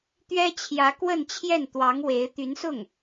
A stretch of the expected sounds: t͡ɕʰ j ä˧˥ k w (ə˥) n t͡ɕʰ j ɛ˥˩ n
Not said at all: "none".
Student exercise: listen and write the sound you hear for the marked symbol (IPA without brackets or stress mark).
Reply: ə˥˧